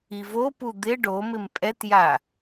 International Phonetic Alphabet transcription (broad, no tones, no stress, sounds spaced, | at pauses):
i v o p u d̪ ɪ ɖ o m ɪ m pʼ ɛ t j a